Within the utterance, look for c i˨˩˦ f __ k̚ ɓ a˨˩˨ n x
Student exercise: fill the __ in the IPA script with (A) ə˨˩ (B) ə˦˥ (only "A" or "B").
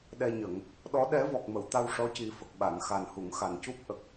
A